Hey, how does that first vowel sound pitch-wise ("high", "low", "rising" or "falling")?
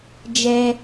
high